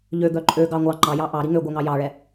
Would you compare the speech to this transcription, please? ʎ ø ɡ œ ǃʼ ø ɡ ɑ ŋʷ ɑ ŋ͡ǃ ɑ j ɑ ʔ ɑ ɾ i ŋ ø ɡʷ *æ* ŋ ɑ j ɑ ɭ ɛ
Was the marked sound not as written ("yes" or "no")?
yes